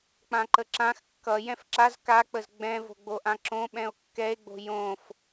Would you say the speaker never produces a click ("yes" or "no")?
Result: no